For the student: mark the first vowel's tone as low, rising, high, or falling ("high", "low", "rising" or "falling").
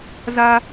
high